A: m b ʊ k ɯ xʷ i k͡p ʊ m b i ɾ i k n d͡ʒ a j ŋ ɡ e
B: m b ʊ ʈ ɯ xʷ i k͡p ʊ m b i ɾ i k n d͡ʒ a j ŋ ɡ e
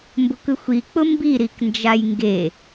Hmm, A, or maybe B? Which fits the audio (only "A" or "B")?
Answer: A